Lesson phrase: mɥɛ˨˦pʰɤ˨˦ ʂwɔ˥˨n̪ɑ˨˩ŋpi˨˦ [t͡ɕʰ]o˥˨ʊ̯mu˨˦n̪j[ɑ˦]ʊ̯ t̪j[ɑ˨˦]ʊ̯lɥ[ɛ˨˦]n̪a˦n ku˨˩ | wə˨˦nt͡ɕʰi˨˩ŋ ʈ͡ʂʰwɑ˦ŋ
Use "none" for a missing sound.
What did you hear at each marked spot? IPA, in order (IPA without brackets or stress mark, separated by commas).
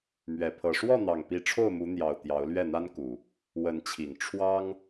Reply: ʈ͡ʂʰ, ɑ˨˩, ɑ˨˦, ɛ˥˨